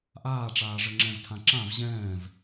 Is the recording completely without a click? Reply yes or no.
no